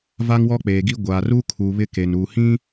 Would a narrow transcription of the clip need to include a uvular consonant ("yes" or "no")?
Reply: no